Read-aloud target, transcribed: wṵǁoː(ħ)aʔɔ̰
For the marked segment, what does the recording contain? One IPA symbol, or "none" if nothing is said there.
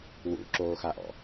x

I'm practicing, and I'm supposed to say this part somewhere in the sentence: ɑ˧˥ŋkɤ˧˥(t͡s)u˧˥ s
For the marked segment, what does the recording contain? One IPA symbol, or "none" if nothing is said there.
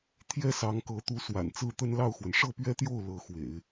t̪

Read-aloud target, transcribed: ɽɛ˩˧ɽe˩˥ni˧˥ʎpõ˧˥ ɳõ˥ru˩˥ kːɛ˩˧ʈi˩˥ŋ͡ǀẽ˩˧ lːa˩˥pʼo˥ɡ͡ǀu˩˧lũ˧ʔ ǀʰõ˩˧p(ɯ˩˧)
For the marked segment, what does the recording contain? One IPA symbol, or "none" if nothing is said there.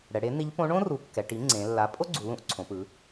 ɯ˩˧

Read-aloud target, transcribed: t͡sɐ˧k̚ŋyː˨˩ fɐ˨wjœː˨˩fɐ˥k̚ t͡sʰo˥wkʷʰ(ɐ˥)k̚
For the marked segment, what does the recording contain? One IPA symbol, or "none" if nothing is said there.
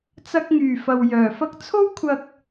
ɐ˧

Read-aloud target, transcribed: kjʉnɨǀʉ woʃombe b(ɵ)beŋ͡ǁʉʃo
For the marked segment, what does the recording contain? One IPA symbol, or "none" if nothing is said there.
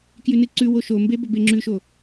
ɵ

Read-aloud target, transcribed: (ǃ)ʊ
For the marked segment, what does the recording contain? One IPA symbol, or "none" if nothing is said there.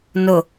n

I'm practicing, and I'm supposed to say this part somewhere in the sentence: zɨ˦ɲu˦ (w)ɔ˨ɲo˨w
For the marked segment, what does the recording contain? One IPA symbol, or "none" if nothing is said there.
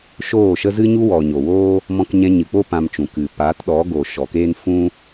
w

